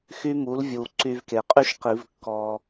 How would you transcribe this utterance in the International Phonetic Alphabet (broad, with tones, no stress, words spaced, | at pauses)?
xy˦˥mu˩˥lvʲu˩ ǀy˧v ke˩qʼy˦˥ʃqi˨˩˦v kːɔ˧